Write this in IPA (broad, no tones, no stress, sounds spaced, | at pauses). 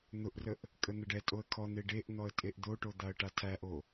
n̪ ʊ ʔ r ə ʔ | kʼ ə n̪ ə ɖ ɛ tʼ o ə̯ kʰ ɔ n̪ e ɖ e ʔ n̪ ɔ ə̯ tʼ e ʔ d̪ o ʈ o d̪ a ə̯ ʈ a tʰ æ ʔ o